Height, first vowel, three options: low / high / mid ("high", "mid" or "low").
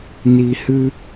high